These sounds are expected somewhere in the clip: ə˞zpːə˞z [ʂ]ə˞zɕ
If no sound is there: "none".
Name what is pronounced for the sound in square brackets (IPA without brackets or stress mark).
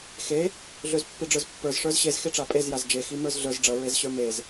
ʂ